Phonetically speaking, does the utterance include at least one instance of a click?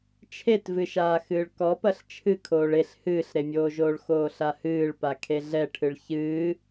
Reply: no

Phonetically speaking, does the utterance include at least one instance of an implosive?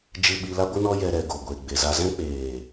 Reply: yes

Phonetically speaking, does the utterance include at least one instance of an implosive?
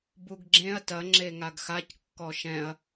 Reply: no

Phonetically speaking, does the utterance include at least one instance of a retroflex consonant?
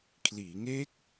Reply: no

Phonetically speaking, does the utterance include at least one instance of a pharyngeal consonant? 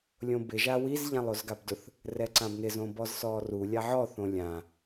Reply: yes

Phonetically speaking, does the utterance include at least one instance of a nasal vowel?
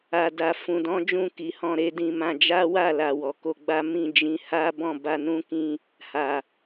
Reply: yes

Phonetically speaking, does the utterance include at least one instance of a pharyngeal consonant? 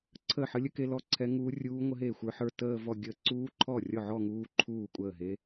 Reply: yes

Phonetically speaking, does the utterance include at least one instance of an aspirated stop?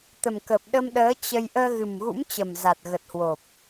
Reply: no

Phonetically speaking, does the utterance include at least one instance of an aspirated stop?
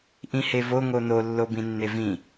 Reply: no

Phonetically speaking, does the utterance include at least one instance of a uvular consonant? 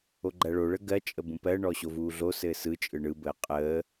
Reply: yes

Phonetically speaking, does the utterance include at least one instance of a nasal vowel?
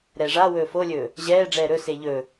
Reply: no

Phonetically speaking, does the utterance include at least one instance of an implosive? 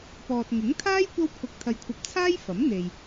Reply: no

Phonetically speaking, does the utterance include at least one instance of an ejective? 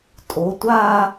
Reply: yes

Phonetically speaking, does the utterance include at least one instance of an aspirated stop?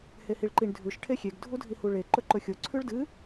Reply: yes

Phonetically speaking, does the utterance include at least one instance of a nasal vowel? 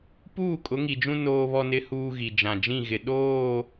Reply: yes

